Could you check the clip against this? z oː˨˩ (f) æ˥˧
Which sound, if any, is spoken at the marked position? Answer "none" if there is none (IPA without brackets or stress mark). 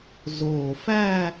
f